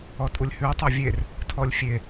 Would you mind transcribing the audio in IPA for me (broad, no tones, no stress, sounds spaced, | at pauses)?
ɔ tʼ u lʲ h ʉ tˤ a vʲ e r | tʰ ɔ lʲ fʲ e